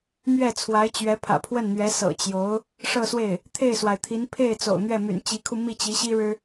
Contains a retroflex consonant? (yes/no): yes